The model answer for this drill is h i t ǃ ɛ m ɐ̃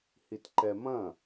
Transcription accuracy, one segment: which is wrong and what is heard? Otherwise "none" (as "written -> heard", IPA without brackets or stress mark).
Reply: none